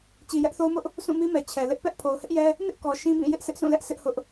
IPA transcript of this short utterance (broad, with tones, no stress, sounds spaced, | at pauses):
t͡ɕ i˨ j ɛ˦ ʔ θ o˦ ʊ̯ m ʊ˦ ʔ | s ũ˦˨ m i˦ m ɛ˨ t͡ɕʰ ɛ˨ l ɪ˦ ʔ p ɛ˦ ʔ pʰ o˨ ʊ̯ h ɪ˦ ʔ j ɛ˦ | n ɪ˦ ʔ k ɔ˨ ʃ ĩ˦ b ĩ˦˨ j ɪ˦ ʔ sʰ ɪ˦ ʔ sʰ ũ˦˨ l ɛ˦ ʔ sʰ ɪ˦ ʔ h ʊ˦ ʔ